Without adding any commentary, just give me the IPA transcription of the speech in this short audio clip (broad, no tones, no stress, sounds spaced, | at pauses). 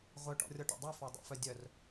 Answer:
ʁʷ œ ʈ ɔ̰ rʲ ɔ ʈ ɔ̰ dˤ u f ɔ dˤ ṵ f œ dʲ œ r